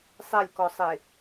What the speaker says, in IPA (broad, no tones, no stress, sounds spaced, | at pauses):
sˤ ɛ lʲ k ɔ sˤ e